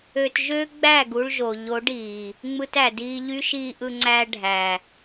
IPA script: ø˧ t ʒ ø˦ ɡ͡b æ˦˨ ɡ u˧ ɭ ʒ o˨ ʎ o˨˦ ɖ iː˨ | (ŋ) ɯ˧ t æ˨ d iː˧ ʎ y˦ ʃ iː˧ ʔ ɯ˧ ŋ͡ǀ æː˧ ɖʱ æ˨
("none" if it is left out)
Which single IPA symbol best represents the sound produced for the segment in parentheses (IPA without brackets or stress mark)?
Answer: ŋ͡m